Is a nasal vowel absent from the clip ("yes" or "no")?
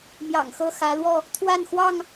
yes